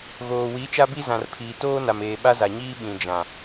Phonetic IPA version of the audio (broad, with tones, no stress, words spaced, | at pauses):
ɣoː˨wi˨˦ t͡ʃa˦bi˦zã˨rpʰiː˨ toː˦na˨meː˨ ɓa˦za˨ɲiː˦ ɓĩ˨d͡ʒã˨